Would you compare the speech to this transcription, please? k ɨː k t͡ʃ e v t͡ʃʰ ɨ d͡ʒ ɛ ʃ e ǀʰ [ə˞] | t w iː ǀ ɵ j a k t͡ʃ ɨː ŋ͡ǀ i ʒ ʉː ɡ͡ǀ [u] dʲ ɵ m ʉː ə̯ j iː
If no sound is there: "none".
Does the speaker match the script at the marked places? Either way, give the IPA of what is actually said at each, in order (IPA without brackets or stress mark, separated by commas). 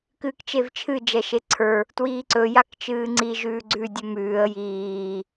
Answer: ə˞, ʉ